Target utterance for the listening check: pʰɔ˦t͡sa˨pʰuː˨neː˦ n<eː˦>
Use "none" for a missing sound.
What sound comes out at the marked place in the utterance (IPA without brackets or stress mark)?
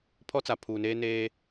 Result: eː˦